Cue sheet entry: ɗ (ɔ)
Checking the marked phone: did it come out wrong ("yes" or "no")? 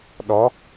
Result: no